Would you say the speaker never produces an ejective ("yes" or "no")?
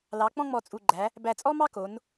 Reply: no